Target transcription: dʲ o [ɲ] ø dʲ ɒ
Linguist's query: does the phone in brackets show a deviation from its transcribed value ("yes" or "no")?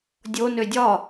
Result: yes